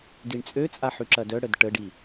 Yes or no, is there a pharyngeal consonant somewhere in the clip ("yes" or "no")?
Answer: yes